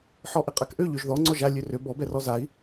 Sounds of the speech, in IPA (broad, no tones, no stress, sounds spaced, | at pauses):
ħ ɔ ʔ ɪ qʼ a k ʔ ø ʎ ø ʒ ð ɔ ŋ͡ǀ ɔ ʒ a lʲ ø r ø b ɔ b ɛ r ɔ z a i̯